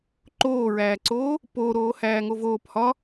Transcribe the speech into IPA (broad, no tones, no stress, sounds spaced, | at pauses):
ǃ oː ɹ æː ǀ oː | p oː ɾ oː h æː ŋ o v oː p h ɒ